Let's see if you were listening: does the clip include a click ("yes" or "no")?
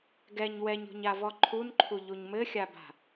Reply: yes